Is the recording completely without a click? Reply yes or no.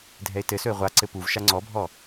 no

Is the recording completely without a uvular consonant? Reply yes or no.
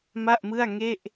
yes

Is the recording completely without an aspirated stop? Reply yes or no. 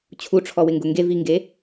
no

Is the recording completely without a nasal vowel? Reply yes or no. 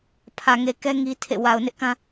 no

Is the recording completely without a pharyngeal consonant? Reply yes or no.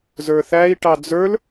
yes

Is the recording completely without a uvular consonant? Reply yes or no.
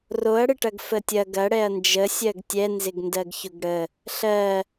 yes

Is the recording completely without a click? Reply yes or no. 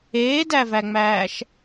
yes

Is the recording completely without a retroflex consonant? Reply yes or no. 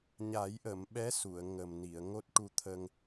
no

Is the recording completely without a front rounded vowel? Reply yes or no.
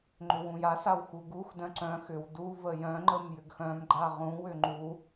no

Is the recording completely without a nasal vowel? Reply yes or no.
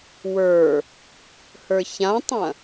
no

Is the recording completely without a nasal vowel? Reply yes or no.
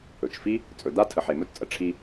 yes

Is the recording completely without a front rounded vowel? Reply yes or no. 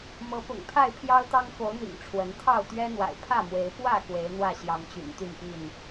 no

